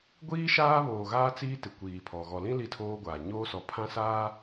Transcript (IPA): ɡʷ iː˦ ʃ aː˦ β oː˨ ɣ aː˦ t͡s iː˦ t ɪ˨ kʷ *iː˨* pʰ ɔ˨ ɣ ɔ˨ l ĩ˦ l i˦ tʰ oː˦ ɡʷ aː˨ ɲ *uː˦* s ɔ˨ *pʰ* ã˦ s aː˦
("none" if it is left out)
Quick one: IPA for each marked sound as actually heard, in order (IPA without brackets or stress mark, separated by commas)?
iː˨, oː˦, pʰ